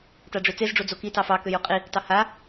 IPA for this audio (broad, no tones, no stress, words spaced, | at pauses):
taɖ͡ʐøt͡sez ɖ͡ʐod͡zoki tɑfɑ køjuqʼi | tɑha